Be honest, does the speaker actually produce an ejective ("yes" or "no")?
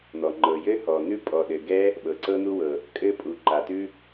yes